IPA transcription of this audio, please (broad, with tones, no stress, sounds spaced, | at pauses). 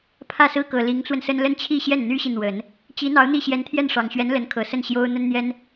pʰ ä˥˧ s ɹ̩˥˩ k ɤ˨˩ l i˧˥ ŋ t͡s w ə˧ n s ə˥ n l ə˥˧ n t͡ɕʰ i˥˧ ɕ j ɛ˥˩ n n̪ y˥ ɕ i˨ n̪ w ə˨˩˦ n | t͡ɕ i˧˥ n̪ ɑ˧˥ ʊ̯ n̪ i˥˩ ɕ j ɛ˧˥ n t̪ʰ j ɛ˥˩ n ʂ ɑ˨˩ ŋ ɕ ɥ ɛ˧˥ n l ə˧˥ n kʰ ɤ˨˩ s ə˥˩ n ɕ j o˥ ʊ̯ n̪ ə˥ n n̪ j ɛ˥ n